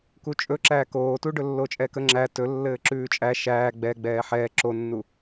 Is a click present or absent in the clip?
present